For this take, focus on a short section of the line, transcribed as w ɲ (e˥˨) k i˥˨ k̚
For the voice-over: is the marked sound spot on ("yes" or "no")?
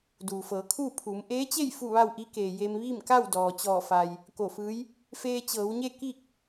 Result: yes